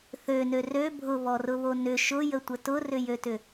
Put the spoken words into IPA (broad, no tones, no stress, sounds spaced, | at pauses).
θ ø n ø r ø bʱ ʊ β ɔ r ʊ β o n ʏ ʃ ʊ j ə tʷ ə t ʊ r ʏ j ø t ʏ